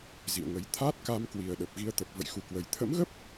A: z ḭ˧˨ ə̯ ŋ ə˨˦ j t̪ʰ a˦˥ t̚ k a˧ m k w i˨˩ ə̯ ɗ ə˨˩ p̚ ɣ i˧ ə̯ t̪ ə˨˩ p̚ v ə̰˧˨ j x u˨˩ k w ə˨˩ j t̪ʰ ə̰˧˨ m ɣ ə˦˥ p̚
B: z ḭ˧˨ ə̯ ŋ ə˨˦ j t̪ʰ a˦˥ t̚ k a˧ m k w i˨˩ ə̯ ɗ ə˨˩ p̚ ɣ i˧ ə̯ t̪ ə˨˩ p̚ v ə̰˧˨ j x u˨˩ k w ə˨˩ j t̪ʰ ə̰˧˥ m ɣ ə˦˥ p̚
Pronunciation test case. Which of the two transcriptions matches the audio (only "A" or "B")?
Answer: B